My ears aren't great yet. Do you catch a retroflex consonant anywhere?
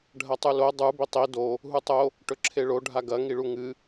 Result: yes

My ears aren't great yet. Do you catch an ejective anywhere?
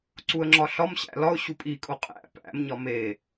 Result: yes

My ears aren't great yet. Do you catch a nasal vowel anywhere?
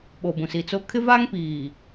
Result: yes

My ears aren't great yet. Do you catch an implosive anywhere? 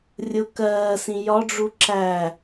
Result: no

